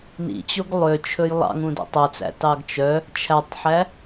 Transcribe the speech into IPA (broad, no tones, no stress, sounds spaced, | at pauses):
n ḭ t͡ɕ o ɡ lˠ ø t͡ʃʰ ɵ j lˠ ɑ̰ ŋ ũ d ɛ̰ tˤ œ t͡s æ̰ t ɑ ɡ t͡ʃ œ | t͡ʃʰ æ tˤ ħ æ